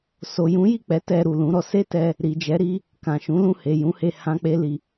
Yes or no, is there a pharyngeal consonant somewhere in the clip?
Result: no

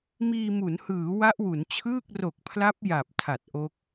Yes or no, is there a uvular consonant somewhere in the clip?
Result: no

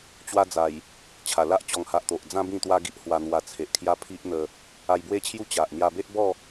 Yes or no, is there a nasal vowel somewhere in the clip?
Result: yes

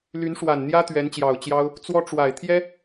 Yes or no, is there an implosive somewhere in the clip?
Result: no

